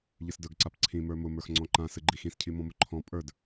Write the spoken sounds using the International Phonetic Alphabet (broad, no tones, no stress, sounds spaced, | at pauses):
ʎ ɨ s d ə˞ ɡ ǀ a p ǀʰ ĩ m ə˞ m ʊ m ə˞ x ŋ͡ǀ ɔ̃ ǃ ã s ɨ ɡ͡ǃ i x ĩ s cʰ i m ɔ̃ m ʊ ǃʰ ɔ̃ pʼ ə˞ d